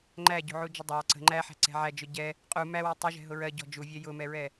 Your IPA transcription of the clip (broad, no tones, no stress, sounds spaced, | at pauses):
ŋ͡ǃ æ ɟ ṳ ʕ u d͡ʒ ɪ dˤ ɑ ǀ ə̤ ŋ͡ǃ æ ħ æ̤ ǀ ɛ̤ ʕ æ d͡ʒ ʊ ɟ ɛ | qʼ u m æ w ɛ tˤ ʊ ʒ ɛ̤ ɦ ʊ ɹ ɜ ɟ ɔ̤ d͡ʒ u vʲ ɛ j ʊ m ɛ ɹ ɛ